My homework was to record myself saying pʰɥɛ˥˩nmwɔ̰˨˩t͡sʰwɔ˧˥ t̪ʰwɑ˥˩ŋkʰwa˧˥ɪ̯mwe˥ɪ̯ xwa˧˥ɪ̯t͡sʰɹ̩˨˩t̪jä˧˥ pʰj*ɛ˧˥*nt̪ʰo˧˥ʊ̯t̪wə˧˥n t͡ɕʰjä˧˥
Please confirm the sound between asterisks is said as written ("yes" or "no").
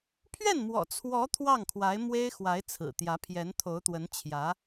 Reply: yes